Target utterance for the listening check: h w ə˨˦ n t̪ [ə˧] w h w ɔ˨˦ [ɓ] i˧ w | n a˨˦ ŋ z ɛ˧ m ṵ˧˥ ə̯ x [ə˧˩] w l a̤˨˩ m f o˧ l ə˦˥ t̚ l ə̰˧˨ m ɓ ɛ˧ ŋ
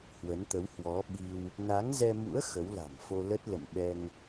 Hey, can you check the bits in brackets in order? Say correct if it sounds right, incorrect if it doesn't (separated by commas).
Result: incorrect, correct, incorrect